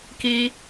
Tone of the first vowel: high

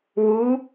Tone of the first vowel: rising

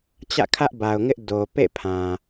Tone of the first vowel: falling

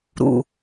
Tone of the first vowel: low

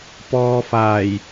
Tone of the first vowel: low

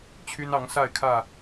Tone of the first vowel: high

